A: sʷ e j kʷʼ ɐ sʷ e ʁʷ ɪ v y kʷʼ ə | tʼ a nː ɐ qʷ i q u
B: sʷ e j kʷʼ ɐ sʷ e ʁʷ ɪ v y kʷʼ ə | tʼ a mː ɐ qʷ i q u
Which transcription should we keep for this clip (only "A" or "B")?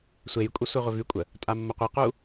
B